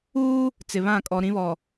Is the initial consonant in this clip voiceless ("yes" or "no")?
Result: yes